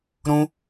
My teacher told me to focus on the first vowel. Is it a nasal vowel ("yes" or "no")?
yes